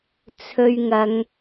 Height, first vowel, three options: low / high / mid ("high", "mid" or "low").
mid